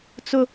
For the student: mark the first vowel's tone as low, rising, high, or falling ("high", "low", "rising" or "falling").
high